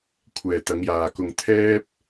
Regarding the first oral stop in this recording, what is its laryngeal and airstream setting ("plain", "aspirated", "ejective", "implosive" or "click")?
aspirated